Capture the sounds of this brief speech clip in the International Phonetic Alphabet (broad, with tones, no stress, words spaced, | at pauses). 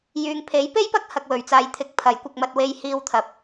jyː˨ŋpʰe˨˥jpe˥jpɐ˥k̚ hɐ˧k̚wɵ˨ɥ t͡saː˨jt̪ʰɪ˨˥k̚ pʰɐ˨˥jkʷɐ˧k̚ mɐ˨t̚we˨j hiː˧wt̪ʰɐ˨˥p̚